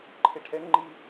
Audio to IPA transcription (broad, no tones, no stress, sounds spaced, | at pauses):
ǃʰ e ʈʰ ɛ ŋ ŋ͡ǃ i